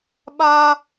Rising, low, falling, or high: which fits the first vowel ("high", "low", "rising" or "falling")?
high